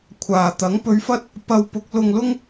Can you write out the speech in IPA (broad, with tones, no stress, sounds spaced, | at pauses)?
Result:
kʷʰ aː˨ t̪ ɐ˨˥ ŋ p ɵ˧ ɥ f ɐ˥ t̚ | p ɐ˧ w p ʊ˨˥ k̚ l ʊ˧ ŋ l ʊ˥ ŋ